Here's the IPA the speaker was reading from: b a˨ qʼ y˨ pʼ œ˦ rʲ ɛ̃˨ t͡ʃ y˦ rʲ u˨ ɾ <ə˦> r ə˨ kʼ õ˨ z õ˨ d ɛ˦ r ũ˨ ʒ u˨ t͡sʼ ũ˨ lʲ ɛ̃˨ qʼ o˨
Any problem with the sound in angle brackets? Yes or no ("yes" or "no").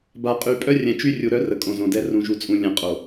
yes